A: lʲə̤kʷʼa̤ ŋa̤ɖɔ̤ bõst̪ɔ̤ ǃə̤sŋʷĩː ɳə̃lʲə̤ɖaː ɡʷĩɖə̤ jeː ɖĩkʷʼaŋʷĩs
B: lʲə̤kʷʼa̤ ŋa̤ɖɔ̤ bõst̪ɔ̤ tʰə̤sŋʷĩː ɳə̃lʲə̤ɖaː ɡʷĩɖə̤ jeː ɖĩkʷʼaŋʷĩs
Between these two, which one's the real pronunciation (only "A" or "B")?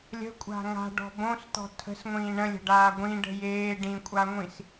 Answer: B